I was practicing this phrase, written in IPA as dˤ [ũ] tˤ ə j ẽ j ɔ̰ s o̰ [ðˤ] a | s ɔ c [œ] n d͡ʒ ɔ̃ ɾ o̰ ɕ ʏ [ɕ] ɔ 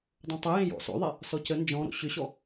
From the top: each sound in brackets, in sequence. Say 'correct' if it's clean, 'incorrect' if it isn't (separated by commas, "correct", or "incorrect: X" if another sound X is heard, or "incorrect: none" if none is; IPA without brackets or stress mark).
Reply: incorrect: õ, correct, incorrect: ə, correct